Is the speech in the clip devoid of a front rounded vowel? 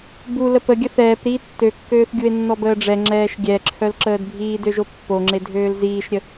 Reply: no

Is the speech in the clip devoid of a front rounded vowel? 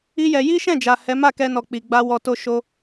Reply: yes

